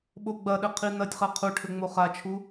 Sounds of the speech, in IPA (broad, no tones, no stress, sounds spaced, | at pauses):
ɓ o ɡ͡b ɐ ɗ ɘ qʰ i n ɐ tʲ χ a qʰ u ʈʰ ɘ ŋ͡m o χ a t͡ʃʰ u